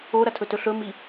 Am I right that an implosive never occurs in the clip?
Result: yes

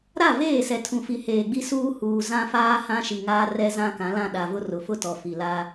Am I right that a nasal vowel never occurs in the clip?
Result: no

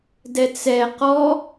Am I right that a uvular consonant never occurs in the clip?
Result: no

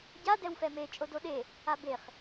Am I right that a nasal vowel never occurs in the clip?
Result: yes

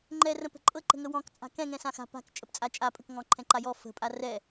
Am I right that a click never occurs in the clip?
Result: no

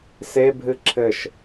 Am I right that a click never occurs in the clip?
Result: no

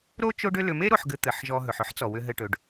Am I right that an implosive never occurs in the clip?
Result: yes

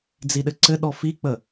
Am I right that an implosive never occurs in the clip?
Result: no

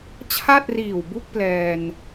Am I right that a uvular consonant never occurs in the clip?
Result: yes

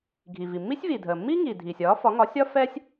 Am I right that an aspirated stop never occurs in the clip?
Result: yes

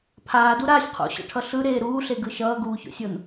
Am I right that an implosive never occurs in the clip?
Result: yes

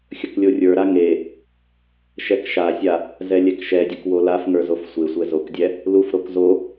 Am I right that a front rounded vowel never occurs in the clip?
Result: yes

